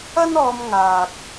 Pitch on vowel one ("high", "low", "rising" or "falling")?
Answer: high